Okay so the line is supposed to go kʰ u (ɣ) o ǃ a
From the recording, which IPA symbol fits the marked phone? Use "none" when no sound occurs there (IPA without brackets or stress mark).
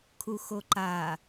x